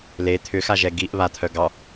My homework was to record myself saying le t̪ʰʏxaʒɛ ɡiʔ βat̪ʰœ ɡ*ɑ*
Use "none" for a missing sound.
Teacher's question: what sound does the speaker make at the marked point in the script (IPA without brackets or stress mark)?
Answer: ɑ